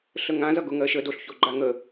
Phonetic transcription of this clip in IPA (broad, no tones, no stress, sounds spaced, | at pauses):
ɬ ə ŋ ã z ʌ ɡ ʊ ŋ ɜ ʃ ə d o ɬ ç o ɡ͡ǃ a ŋ ə